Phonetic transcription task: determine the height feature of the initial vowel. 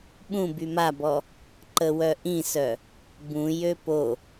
high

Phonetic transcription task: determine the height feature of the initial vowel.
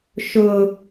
high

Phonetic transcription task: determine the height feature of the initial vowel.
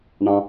low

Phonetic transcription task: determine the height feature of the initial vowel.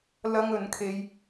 low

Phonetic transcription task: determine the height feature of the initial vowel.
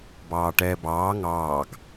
low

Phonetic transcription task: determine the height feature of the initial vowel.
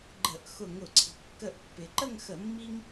mid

